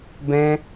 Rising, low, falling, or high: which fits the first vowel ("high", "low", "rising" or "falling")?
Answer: high